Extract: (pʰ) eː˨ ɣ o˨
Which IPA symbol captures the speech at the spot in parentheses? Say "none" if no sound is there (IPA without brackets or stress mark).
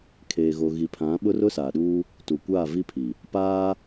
kʰ